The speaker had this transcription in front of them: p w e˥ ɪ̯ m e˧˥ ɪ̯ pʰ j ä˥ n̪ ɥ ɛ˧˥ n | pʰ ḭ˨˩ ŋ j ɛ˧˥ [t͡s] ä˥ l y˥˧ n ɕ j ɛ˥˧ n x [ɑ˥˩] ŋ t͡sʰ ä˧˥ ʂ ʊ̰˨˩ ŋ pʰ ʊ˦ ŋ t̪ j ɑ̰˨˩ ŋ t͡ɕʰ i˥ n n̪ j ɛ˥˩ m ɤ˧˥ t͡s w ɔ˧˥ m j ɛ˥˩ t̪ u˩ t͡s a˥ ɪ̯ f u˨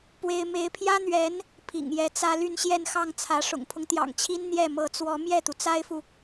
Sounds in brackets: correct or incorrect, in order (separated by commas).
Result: correct, correct